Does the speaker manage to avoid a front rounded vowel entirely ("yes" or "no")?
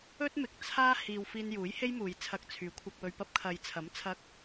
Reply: no